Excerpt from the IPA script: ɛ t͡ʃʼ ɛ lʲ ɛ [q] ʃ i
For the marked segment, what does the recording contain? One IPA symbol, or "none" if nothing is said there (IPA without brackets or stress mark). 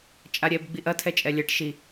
ʈ